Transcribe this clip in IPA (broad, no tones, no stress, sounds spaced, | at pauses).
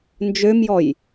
n d͡ʒ ø m j ɔ j